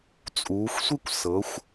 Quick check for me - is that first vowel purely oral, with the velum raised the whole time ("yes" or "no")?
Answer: yes